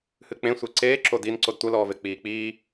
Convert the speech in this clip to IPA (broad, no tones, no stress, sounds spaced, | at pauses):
h ɨ k͡p ẽ sʷ e ǀ eː ǁ o d i n ǀ o d tʷ ɐ l ɔː v e k͡p iː k͡p iː